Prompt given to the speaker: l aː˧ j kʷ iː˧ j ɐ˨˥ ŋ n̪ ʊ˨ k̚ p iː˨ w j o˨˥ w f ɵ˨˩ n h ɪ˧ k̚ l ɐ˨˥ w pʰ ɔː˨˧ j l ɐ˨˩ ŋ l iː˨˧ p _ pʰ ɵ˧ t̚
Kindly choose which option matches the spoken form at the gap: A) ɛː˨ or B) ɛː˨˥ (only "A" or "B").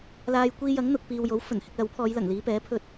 B